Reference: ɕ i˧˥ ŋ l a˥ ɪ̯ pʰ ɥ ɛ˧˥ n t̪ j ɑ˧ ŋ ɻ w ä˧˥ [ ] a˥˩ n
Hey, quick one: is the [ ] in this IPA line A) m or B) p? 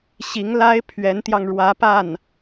B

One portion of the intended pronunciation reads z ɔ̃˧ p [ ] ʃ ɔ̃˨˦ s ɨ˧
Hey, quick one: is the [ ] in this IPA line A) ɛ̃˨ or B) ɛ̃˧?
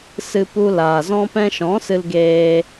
B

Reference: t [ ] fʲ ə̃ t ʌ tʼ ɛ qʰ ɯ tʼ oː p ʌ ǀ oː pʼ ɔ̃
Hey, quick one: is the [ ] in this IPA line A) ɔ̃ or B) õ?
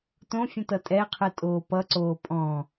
B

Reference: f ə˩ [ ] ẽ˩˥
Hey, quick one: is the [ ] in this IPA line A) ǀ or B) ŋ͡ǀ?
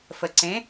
A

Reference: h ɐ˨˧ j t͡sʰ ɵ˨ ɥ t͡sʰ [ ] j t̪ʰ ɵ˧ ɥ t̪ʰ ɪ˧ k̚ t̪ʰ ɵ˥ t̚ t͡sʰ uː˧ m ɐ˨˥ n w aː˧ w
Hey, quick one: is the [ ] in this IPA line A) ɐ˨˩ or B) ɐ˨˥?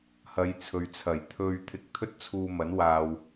A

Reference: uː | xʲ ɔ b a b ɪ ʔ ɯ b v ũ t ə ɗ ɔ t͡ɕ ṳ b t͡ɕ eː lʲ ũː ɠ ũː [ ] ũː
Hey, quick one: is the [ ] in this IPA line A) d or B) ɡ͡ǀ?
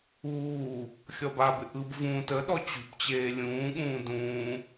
A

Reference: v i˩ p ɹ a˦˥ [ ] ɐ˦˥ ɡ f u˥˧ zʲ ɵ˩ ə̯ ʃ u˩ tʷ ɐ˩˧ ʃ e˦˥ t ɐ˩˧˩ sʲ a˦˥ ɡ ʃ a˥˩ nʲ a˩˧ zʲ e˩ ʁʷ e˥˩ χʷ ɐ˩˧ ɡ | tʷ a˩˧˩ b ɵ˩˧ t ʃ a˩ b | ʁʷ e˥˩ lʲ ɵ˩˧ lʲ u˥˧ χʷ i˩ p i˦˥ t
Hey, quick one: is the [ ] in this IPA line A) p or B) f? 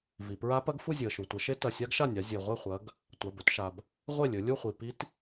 A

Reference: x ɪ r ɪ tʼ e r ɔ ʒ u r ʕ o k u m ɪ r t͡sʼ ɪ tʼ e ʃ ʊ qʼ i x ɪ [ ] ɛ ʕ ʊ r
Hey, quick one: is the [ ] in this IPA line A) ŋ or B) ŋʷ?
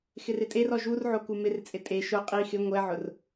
B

